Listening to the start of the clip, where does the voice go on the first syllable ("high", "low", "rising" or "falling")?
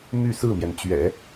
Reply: falling